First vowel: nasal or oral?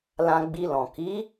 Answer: nasal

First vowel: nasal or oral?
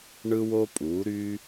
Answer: oral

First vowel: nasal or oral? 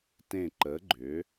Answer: nasal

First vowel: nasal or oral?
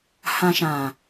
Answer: nasal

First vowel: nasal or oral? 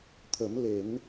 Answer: oral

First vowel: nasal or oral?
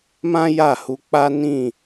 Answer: nasal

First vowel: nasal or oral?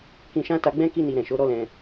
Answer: nasal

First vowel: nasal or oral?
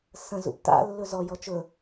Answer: nasal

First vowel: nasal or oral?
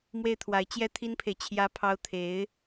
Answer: oral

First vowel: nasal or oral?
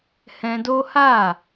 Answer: nasal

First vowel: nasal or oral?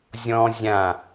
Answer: nasal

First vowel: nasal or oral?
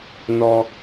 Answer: oral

